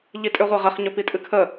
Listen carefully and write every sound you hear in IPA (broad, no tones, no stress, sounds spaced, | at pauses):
ʎ i tʼ ʏ ʁʷ ɛ ʁ ə χ ɲ ɵ p i tʼ ɨ kʰ ə